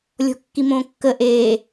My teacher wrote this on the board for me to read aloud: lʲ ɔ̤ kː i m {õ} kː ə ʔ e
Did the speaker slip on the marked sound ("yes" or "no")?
no